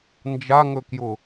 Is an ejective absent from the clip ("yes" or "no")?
yes